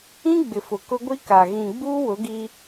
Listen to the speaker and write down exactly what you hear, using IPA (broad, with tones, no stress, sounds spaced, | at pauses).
ĩ˦ ɡ͡b ɪ˨ f ʊ˨ k ʊ˦ ɡʷ i˦ k a˨ ɣ ĩ˨ ɡ͡b uː˦ w ʊ˨˦ ɡ i˦